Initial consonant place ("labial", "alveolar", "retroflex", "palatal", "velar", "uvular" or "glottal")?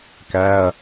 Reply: velar